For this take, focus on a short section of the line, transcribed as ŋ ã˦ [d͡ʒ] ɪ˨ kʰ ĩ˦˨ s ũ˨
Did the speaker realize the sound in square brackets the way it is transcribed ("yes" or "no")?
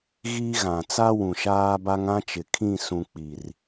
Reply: no